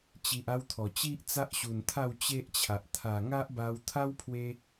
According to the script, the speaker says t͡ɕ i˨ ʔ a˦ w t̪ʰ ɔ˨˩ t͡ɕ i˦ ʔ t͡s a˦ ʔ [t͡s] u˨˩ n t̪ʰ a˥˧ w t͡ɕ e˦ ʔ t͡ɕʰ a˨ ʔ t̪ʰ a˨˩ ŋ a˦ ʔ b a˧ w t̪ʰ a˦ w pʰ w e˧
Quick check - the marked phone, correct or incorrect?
incorrect: ɕ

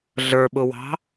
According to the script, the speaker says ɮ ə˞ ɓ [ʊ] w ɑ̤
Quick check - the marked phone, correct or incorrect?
correct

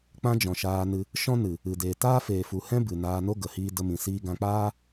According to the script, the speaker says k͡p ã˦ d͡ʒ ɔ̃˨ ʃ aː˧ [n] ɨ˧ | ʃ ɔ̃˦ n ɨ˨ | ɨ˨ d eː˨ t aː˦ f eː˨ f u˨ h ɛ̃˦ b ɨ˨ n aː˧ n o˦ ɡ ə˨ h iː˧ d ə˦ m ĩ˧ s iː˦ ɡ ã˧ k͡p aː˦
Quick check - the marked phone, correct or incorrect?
correct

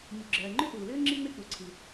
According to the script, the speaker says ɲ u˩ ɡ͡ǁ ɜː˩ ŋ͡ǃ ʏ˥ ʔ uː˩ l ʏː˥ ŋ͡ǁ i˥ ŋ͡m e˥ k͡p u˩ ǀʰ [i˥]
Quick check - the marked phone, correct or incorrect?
incorrect: i˩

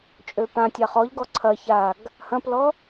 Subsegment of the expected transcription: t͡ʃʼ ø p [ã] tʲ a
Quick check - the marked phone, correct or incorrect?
correct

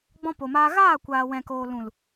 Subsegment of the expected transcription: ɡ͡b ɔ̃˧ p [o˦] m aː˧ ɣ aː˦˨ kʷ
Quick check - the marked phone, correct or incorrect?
incorrect: o˨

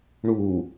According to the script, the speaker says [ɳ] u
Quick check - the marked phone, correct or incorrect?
correct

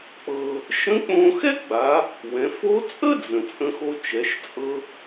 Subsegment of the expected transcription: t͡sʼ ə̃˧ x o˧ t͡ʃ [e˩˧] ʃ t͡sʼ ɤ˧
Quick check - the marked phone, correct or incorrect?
incorrect: ɛ˩˧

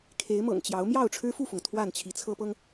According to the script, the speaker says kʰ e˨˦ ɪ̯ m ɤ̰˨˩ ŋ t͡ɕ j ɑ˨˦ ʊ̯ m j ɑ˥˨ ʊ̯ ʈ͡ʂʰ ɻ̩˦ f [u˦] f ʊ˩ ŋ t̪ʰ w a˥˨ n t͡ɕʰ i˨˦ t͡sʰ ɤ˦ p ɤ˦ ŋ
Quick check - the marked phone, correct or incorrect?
incorrect: u˥˨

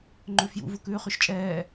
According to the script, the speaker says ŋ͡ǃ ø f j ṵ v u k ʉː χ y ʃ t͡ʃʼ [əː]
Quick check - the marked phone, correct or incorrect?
incorrect: ɛː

